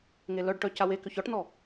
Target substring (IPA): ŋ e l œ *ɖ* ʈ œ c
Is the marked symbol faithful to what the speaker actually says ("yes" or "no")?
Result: yes